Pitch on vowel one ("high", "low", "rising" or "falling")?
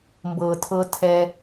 low